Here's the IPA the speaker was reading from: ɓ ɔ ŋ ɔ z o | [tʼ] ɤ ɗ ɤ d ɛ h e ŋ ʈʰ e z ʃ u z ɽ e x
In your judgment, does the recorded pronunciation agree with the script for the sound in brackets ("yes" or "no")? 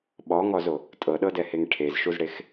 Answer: yes